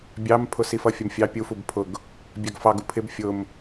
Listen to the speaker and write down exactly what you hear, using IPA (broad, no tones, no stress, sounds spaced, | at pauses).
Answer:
bʲ ɑ m pʰ ʊ s i f ʌ fʲ ə m fʲ ɑ pʲ u f u b pʰ ʊ ɡ | bʲ ɑ ɡ f ɑ ɡ u pʰ ɪ b fʲ ʊ m